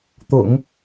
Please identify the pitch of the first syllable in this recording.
low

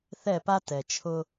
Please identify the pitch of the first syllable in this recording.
falling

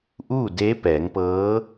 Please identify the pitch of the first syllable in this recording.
falling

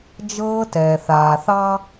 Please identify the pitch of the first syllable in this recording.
high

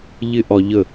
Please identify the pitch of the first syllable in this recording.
high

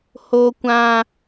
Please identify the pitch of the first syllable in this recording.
high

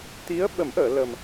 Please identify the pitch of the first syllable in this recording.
rising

